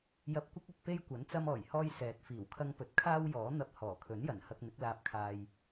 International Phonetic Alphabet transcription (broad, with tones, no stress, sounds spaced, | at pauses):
j ɐ˧ p̚ kʷ ɪ˥ k̚ ɵ˨ t̚ p e˥ j kʷ ɐ˨˥ n t͡s ɐ˧ m ɔː˨˩ j h ɔː˧ j s ɛː˨ t̚ f iː˨˩ w kʰ ɐ˥ ŋ p ɵ˧ t̚ kʰ aː˥ w j ɔː˨˥ n̪ ɐ˧ p̚ h ɔː˨˩ kʰ ɵ˨˥ n j ɐ˨˩ n h ɐ˧ k̚ n̪ ɪ˨˥ k̚ l aː˧ p̚ kʰ aː˧ j